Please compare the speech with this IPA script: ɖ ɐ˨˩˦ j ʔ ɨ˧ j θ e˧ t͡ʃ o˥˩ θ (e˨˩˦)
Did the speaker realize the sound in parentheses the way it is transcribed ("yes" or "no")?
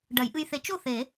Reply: yes